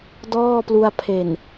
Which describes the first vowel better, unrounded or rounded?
rounded